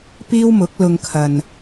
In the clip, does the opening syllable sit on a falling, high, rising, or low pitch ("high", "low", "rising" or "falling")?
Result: high